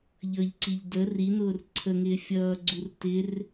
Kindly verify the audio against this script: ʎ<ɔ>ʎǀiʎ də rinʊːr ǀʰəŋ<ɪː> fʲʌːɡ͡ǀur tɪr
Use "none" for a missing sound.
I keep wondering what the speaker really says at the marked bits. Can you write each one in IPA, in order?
ʌ, ɪː

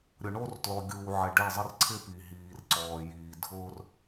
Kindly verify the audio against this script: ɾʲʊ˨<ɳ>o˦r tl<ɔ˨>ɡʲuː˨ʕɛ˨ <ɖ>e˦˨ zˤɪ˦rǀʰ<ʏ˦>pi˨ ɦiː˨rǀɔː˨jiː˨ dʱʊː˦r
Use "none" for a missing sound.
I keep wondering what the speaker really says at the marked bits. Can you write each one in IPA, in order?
ɳ, ɔ˨, ɖ, ɪ˦

